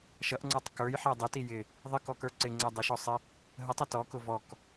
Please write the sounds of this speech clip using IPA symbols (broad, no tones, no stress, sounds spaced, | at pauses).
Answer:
ʃ ʌ ʔ ŋ͡ǀ ə˞ tˤ k ə˞ j ħ ɛ dˤ ɪ t i j ɪ | ðˤ ə k ɔ k ə˞ ǀ ɪ ŋ͡ǀ ɛ dˤ ə ʃ ɔ sˤ ɪ | ɦ ə tˤ ə t ɔ k ʊ v ɔ k